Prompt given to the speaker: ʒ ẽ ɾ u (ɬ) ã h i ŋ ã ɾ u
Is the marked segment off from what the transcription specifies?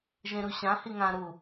yes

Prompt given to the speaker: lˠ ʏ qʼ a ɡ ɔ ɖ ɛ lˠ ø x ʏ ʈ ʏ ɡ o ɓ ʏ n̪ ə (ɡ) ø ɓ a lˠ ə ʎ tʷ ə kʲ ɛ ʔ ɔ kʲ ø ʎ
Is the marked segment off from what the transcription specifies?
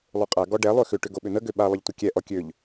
no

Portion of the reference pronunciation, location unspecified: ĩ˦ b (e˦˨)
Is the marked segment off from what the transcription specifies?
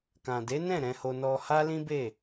no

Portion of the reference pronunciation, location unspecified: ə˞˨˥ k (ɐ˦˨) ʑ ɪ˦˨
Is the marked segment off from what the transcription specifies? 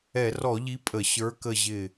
yes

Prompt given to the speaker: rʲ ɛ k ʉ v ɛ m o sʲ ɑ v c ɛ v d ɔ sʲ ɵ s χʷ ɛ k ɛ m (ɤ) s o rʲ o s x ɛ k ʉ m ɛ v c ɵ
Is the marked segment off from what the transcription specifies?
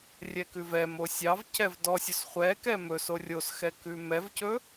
yes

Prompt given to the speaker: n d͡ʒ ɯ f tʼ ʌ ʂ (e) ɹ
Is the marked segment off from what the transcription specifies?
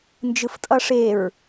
no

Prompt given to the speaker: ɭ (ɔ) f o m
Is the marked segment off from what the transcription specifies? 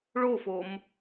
yes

